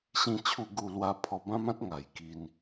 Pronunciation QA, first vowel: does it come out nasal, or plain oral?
nasal